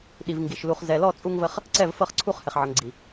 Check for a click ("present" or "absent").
present